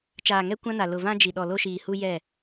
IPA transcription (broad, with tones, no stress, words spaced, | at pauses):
t͡ʃaː˨ŋɛ˦ kʷã˦na˨ lʊ˨vã˦d͡ʒi˨ ɗɔ˨lo˦ʃiː˨hu˦ jɛ˦˨